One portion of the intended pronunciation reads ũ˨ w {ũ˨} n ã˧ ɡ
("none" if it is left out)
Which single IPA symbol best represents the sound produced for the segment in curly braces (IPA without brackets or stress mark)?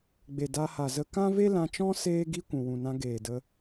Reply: ũ˨